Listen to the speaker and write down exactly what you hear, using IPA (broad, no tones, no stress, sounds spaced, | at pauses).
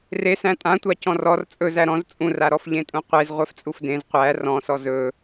r e s æ̃ tʼ ã tʷ a c ɔ̃ r ɔ r t͡sʼ ɵ z æ ɾ ɔ̃ z t͡sʼ ũ r a ɾ ɔ f ʎ ẽ tʼ ũ qʷ e z ʁʷ ɛ f t͡sʼ u f d ẽ z qʷ æ r ɔ̃ s ɔ z ɵ